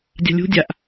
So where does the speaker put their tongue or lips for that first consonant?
tongue tip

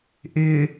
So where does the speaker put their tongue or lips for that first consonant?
throat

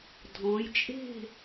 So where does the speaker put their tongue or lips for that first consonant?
tongue tip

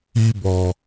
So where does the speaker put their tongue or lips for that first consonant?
lips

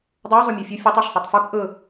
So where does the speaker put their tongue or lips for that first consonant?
tongue tip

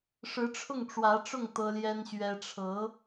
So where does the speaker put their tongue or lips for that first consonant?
retroflex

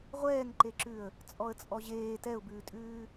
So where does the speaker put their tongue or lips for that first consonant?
uvula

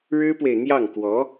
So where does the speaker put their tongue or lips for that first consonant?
retroflex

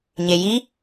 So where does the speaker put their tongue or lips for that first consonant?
palate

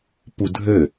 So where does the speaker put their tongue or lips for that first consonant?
lips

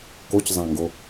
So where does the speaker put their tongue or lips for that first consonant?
velum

